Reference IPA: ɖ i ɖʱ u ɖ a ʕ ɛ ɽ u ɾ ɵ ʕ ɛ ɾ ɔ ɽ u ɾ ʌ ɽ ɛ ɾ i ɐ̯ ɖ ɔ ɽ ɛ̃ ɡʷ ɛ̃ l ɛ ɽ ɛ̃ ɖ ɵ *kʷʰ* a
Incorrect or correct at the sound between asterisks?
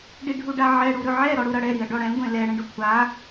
correct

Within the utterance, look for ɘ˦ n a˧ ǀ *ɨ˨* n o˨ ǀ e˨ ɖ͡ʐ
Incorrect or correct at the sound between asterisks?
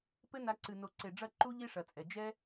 correct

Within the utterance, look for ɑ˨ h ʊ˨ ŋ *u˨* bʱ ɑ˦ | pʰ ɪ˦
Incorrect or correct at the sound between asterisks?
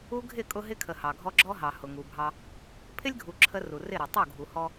correct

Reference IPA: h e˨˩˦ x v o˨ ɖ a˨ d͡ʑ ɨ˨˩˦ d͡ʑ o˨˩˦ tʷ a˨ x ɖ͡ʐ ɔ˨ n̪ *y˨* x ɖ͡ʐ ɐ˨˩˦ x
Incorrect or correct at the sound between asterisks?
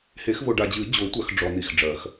incorrect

